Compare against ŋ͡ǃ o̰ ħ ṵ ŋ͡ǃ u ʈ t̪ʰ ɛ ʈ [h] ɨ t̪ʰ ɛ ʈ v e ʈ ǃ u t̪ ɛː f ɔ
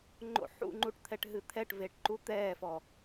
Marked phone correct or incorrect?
incorrect